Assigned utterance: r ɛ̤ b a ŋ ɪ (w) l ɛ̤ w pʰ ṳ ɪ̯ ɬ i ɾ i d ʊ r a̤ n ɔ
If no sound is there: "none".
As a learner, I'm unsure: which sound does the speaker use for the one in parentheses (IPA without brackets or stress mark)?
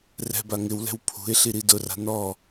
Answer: w